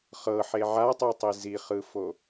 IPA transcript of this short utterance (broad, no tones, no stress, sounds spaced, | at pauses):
χ ɤ ħ e ʕ a tˤ u tˤ e z i χ ɯ f o